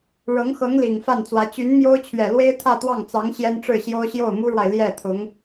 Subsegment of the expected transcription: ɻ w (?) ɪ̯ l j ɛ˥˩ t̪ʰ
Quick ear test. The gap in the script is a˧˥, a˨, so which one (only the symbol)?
a˨